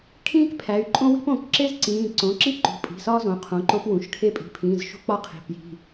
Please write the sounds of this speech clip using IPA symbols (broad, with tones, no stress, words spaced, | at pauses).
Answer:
kʰĩː˥kpʰæ˩˧˩y̯ ǃʼõ˥wi̤˥põ˩˧˩k ǁe˥zǀĩː˩˧˩ ǀõ˩˧˩ǁi˥ ǃṳ˩˧˩pʼi̤˩˧˩ sɒː˥zõ˩˧˩qʰõ˩˧˩ ǃo˥p wũ˩˧˩ʃkʰe˥ pʼi̤˩˧˩pʰĩː˩˧˩z ʃṳ˥k͡pɒ˥ qʰi̤˩˧˩ pji̤˩˧˩